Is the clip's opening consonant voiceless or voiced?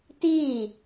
voiceless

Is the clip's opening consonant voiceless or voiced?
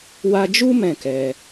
voiced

